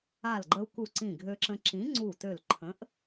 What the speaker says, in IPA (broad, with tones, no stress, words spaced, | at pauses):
a˧˩lɡ͡ǃə˧u̯ku˧˩ ǀĩ˧˩ɡʱø˧ǁə̃˧ ǁĩ˨˥ŋ͡ǀu˧˩tø˧˩lǃʰə̃˨˥ʔ